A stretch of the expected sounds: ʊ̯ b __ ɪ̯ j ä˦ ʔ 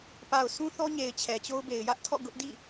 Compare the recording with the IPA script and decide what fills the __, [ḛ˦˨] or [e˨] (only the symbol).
e˨